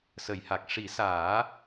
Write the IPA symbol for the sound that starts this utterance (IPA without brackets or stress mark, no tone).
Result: s